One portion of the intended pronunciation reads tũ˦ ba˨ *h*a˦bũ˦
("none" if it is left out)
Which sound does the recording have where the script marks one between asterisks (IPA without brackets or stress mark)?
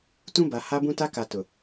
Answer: h